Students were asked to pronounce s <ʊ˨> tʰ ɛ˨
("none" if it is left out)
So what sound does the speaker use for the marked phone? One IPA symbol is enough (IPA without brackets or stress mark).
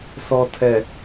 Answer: ɔ˨